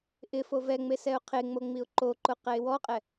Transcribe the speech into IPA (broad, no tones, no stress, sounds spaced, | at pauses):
ʔ ɪ f o v ɛ ŋ͡m e s ɛ ʊ̯ qʰ e ŋ͡m o ŋ͡m i ʊ̯ ǃ o ǃ ʊ q ɛ ɪ̯ w ɔ qʼ ɛ